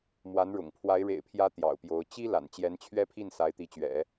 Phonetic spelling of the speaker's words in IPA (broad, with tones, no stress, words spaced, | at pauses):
mwa˧˥n ɻʊ̰˨˩ŋpʰwa˧˥ɪ̯ ɻḛ˨˩ɪ̯pʰjä˧˥ t̪jɑ̰˨˩ʊ̯pjo˧˥ʊ̯ t͡ɕi˥la̰˨˩n t͡ɕjɛ˧˥nt͡ɕʰɥɛ˥pʰi˥˩n sa˧˥ɪ̯t̪i˧˥t͡ɕɥɛ̰˨˩˦